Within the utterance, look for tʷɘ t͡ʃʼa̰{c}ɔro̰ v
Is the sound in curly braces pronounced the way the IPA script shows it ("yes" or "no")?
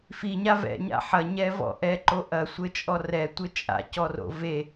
yes